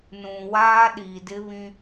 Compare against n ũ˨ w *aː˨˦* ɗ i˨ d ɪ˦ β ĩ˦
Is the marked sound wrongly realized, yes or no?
yes